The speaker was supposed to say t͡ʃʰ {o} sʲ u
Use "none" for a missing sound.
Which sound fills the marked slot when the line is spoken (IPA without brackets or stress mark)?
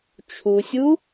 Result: u